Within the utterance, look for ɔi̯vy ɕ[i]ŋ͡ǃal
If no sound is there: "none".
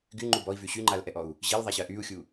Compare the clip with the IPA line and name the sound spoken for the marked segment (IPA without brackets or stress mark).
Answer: y